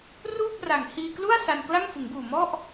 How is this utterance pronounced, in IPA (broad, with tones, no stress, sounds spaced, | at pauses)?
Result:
r uː˥˩ p̚ r a˨˩ ŋ h iː˧ k l u˥˩ a̯ s a˧ n k l a˥˩ ŋ f ɯ˩˦ ŋ b uː˨˩ m ɔ˥˩ ʔ